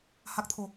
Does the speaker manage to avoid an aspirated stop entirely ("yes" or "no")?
no